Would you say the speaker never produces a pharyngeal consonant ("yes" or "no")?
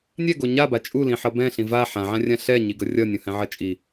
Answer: no